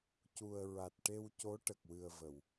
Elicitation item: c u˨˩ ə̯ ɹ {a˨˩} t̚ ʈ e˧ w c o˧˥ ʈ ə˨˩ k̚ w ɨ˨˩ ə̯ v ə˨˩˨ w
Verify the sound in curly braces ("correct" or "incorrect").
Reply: correct